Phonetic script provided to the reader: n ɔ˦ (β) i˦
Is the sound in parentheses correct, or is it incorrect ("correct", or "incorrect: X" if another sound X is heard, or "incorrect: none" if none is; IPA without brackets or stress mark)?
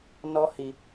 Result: incorrect: h